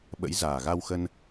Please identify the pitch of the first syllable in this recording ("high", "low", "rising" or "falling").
rising